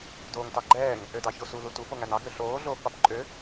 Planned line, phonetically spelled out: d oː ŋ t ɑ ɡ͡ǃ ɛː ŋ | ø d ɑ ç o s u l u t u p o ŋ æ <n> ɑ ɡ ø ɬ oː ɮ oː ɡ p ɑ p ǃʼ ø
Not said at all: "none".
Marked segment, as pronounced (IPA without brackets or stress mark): n